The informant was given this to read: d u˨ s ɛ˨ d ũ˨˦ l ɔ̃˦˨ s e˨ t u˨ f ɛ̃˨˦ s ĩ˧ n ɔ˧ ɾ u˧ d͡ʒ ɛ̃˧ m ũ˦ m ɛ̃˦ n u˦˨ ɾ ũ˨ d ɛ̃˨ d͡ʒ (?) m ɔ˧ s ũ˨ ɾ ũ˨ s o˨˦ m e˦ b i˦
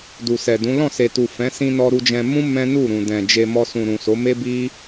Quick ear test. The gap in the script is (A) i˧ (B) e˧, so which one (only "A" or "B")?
B